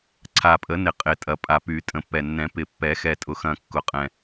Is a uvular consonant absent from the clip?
no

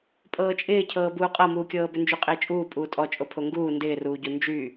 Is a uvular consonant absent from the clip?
no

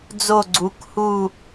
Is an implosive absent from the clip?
yes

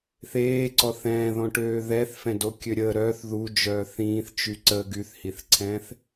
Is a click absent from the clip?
no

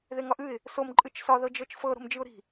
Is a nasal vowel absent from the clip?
yes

